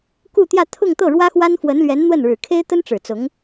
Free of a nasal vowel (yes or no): yes